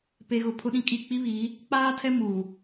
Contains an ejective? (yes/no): yes